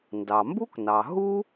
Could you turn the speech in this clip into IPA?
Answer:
n d ɑ˩ m b u˥ k n ɑ˩ ɦ u˥

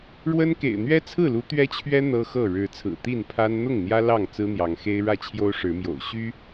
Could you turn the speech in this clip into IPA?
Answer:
ɻ w ə˦ n k ḛ˨˩ ɪ̯ n̪ ɥ ɛ˦ t͡sʰ ɹ̩˥˨ l u˨˦ t̪ ɥ ɛ˦ t͡ɕʰ ɥ ɛ˦ n̪ ɤ˦ x ɤ˥˨ ɻ ɻ̩˨˦ t͡sʰ ɹ̩˨˩ t̪ i˥˨ n pʰ a˦ n n̪ ʊ˥˨ ŋ n̪ j ä˦ l ɑ˥˨ ŋ t͡s ɹ̩˦ n̪ j ɑ˨˦ ŋ x e˦ ɪ̯ ɻ ä˥˨ t͡ɕʰ j o˦ ʊ̯ ʂ ɻ̩˨˦ m j o̰˨˩ ʊ̯ ɕ y˦

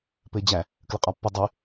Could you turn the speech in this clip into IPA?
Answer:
p ɘ e̯ d͡ʑ æ | k l ə qʼ ɒ pː ɘ dˤ e

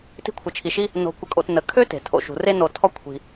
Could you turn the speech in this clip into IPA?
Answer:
t i̤˦ kʷʰ ə˨ t͡ʃʰ i˨ ʃ i˥ | n o̤˨ kʷ ə˨ kʼ o̰˨ t n ə˩ kʰ ø˥ t e̤˩ tʰ o̰˩ ʃ ṳ˩ r e˦ n o˨ tʰ ɔ˦ kʷʰ i̤˨

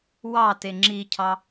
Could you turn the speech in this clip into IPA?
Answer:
w ɑ t e ŋ͡ǁ i cʰ ɑ

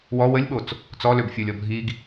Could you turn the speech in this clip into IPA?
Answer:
w ɔ w ə lʲ ɓ o t͡s | t͡s ɔ l ø b fʲ o lʲ ɔ bʱ i ɡ

